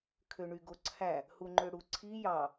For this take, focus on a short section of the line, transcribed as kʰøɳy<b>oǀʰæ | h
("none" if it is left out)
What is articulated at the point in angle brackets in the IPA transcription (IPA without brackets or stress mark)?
ɡ